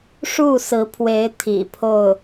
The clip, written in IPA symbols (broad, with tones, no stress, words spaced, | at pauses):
ʂu˥˩sɹ̩˧˥pʰwe˧˥ɪ̯ t̪ʰḭ˨˩pʰo˥˩ʊ̯